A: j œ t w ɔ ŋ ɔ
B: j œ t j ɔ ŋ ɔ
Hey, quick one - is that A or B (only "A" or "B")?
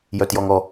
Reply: B